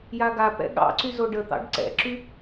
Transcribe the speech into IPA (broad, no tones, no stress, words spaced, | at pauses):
jaɡapɛ̰ ɠɑ̰ǀy zoɖət̪ɑ̰ɖ ǀɛ̰ǁy